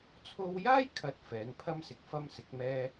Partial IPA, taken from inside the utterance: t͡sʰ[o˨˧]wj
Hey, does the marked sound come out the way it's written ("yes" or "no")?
no